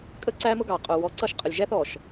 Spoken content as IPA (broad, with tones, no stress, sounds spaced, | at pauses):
kʼ ə˦ ǀ æ˦ m ʊ˦ ɡ ɑ˨ qʼ ʊ˨ w ɔ˨˦ ǀ ʌ˦˨ ʃ qʼ ə˨ lʲ ʒ æ˦ θ ɔ˨ ʃ